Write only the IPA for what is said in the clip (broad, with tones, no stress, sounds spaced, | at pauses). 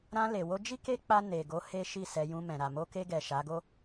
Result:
ɾ ã˧ l e˨ w o˧ d͡ʒ i˦ k e˦ k͡p a˧ n e˨ ɡ o˨˦ h e˦ ʃ i˦˨ s ɛ˧ j ũ˧ m ɛ̃˨ ɾ a˨ m o˧ k e˧ ɡ ɛ˨ ʃ a˨˦ ɡ o˦